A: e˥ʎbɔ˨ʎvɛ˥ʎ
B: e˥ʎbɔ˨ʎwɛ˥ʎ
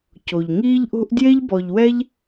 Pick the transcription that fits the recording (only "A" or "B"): B